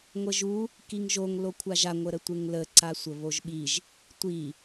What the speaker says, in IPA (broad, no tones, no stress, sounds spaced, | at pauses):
ŋʷ ə ʒ u | k i ŋ ʒ o ŋ l o kʷʰ a ʒ a ŋʷ ə ɾ ə tʷ e ŋ l ə ǀ a sʷ ə β o ʒ ɓ i ʒ | tʷ i